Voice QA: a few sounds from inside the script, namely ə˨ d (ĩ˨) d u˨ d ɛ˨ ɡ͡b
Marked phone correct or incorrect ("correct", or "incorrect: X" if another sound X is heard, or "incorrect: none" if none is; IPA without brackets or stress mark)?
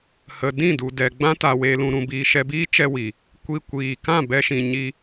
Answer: incorrect: ĩ˦˨